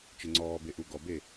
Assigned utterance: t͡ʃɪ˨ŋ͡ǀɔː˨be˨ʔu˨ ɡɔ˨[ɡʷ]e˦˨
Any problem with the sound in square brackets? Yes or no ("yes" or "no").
yes